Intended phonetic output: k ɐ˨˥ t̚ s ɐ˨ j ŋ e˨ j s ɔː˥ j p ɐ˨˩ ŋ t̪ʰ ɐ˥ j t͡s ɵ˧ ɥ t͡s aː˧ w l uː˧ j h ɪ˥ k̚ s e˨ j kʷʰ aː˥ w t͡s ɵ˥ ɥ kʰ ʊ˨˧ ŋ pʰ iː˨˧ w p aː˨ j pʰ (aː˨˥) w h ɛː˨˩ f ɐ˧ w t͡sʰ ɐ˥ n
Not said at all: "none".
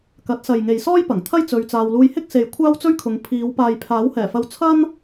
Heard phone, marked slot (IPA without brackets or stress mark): aː˨˥